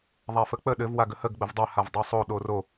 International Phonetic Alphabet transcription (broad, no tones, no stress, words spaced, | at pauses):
ðˤafək͡pə ɗɘv waɡəhəɡ ɡ͡bəvdˤa havdˤosˤo ɗoro